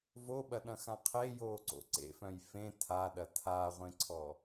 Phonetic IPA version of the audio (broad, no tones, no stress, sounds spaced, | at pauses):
v o ɓ ɐ ɗ ɐ̃ x ã qʰ e j oː ǀ o̰ ǀ ḛ f œ̃ j f ẽ tʰ a ɗ ɐ tʰ a ʁʷ ẽ ǀʰ ɔ